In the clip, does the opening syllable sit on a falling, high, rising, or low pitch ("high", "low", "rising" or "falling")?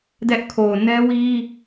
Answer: high